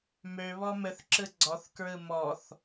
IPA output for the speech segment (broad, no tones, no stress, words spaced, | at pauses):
mø βɔmɘθ ǁɯɡ͡ǀɔθ kɹɯmɔθ